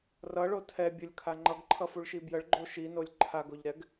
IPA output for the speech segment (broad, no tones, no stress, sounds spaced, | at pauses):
r ʌ ɭ o tʰ ɛ bʲ ʌ lʲ kʰ a ŋ͡ǃ ʌ ɡ ǃʰ ʌ f u ɭ ʃ i b j ə ɭ ɡ͡ǃ o ʃ i n o lʲ ǃʰ a ɡ o ʎ ɾ ɛ ɡ